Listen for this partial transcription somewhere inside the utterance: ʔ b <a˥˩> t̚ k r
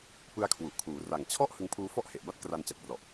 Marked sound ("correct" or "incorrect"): correct